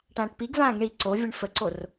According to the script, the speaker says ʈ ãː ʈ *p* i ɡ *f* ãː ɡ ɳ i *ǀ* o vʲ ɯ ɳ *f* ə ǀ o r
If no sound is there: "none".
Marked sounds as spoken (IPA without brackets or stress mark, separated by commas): p, v, ǀ, f